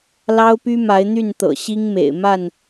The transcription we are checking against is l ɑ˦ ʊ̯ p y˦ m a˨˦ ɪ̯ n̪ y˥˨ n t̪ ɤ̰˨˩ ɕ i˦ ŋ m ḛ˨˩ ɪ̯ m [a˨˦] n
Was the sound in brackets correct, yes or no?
no